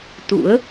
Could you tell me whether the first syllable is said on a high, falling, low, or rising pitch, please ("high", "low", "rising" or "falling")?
rising